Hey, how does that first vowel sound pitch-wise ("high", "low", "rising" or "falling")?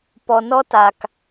low